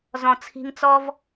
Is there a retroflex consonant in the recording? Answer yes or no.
no